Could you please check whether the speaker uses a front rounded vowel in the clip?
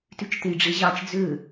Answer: yes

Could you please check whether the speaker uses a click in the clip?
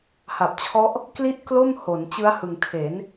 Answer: no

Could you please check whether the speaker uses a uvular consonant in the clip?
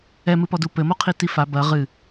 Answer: yes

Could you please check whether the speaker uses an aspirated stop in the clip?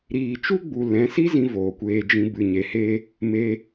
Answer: no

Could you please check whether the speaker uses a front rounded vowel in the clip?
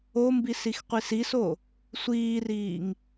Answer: no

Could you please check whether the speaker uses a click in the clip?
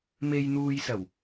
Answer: no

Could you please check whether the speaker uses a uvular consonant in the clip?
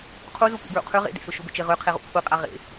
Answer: yes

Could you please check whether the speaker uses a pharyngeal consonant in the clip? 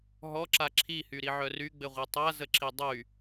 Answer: yes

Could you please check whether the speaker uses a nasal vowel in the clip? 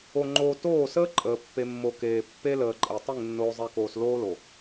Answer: no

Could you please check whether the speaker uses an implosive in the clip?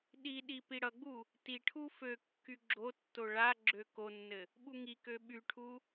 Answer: yes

